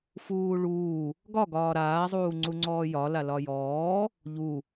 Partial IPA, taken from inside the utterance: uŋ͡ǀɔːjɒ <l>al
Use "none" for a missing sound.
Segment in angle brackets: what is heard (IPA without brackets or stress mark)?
l